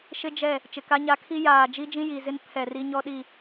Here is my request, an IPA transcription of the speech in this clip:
ʃ ɪ˦ d͡ʒ ɛ˦˨ | t͡ʃ ɪ˨ k a˦ ɲ a˦ kʰ i˦ j aː˨ d͡ʒ i˦ d͡ʒ ĩ˦ j i˨ z ɪ˦ n pʰ ɛ˨ r i˦ ɲ ɔ˦ ɗ i˦˨

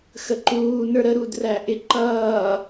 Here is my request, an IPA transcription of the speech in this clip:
x ə ǃ uː n ə˞ ɾ ə ɾ u d r æ ʔ ɪ ǃ ʌː

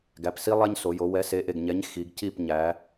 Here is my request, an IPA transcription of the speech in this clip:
ɡ æ˩˧˩ p s i˥ lˠ æ˥ ɲ s o˩˧ j o˩˧ w ɛ˨˥ s e˩˧˩ ʔ e˥˩ ɡ ɲ ɛ˨˥ ɲ x i˩˧ ɡ c i˥˩ p ɲ æ˩˧

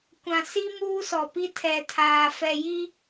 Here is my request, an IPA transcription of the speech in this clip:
kʷ ã˨ s i˦ m uː˦ s ɔ˨ p i˦ tʰ ɛ˨ tʰ aː˨ f ɛ˨ j i˦

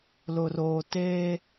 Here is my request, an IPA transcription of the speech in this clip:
l ʊ˨ r oː˨ t eː˦

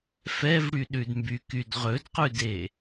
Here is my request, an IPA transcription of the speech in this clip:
f ɛ v ɽ y ɗ ʉ d m b y k y d ʁ ɵ d q ʉ d e

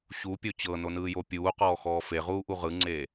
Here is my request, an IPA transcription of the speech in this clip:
ɕ u pʲ o t͡ɕ ɤ n o n ɯː j o pʲ uː q ɔː x ɔː f e ʁ uː ʔ u ʁ ɯ ŋ͡ǀ eː

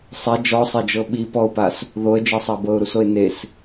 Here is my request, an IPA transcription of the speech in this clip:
sˤ ɛ d͡ʒ ɔ sˤ e d͡ʒ ɤ ɓ i p ɔ ʊ̯ p a s | ð o ə̯ d͡ʒ e sˤ a b ɤ ʊ̯ ɾ u s o ɪ̯ n e s

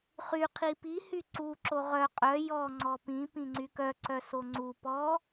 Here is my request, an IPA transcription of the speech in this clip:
χ y qʰ i p i h y ǀ u ǁ o ʁ œ qʼ œ j ɔ ŋ͡ǀ ɔ p ĩ p ĩ ŋ͡ǀ y k œ ǀ œ s o ŋ͡ǀ u p ɔ

